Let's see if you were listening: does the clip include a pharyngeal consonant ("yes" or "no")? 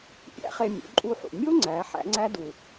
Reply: yes